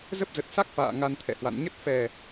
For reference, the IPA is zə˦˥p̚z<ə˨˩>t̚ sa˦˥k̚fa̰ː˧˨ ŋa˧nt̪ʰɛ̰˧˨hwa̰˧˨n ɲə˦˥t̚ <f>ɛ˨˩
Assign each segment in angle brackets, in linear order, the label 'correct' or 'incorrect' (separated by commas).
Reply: correct, correct